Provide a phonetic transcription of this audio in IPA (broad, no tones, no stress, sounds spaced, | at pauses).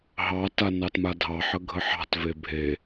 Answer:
ɦ ɑ t a n ɑ t m a dʱ ɑ ħ ə ɡʱ ə ħ ɑ̤ t v e bʱ e